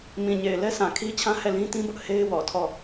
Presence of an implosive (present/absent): absent